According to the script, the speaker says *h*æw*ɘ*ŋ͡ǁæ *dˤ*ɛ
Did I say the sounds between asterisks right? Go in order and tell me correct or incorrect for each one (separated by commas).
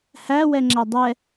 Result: correct, incorrect, correct